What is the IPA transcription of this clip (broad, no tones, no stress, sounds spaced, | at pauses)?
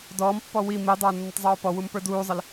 d ɔː m pː ɔ w i m i dˤ ə˞ nː ə tˤ zˤ oː p ɔ w u m p ə˞ d uː zˤ ə l